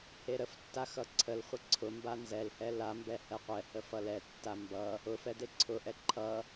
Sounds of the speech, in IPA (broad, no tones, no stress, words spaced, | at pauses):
heɾəftːa xʌǀʰəlχʷə ǀʰʊmba nzɛlhɛ lambɛ hɛqʷɛhə fʌlɛtːa mbʌ | ʊfɛ deǀʰʊʔɛ ǃʰʌ